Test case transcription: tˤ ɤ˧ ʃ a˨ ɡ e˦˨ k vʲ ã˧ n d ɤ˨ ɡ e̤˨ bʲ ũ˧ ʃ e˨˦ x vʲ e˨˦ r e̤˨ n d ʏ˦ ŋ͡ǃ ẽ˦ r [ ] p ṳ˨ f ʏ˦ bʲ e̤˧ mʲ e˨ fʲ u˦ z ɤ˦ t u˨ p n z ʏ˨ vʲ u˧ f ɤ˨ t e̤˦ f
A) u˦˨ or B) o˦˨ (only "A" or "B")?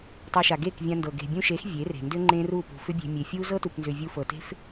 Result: A